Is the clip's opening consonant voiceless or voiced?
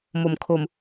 voiced